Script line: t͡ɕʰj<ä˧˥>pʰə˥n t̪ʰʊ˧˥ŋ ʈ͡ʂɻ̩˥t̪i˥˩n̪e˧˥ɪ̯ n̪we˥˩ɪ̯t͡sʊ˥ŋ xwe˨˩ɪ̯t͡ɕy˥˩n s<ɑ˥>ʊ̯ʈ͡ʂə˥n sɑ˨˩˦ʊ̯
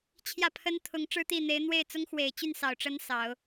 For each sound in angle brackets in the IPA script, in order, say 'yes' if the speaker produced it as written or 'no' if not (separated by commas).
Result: no, no